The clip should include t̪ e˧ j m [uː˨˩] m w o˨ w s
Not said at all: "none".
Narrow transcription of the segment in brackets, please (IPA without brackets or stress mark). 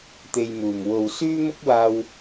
uː˨˩